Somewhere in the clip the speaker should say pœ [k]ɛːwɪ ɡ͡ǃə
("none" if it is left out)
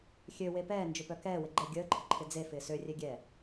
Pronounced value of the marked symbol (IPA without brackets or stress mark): k